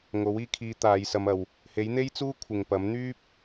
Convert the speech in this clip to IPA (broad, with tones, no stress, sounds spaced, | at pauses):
ŋ o˨˥ w iː˧ kʰ iː˧ t̪ aː˨˧ j s ɐ˧ m ɐ˨ w | h e˨˥ j n̪ e˥ j t͡s uː˥ kʷʰ ɪ˨ ŋ p ɐ˨˥ m n̪ yː˥ p̚